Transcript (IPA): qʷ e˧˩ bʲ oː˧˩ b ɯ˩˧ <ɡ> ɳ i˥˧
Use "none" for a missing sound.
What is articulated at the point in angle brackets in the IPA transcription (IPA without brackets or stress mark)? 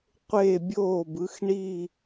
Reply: x